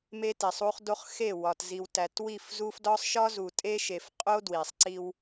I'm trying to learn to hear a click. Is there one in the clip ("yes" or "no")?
yes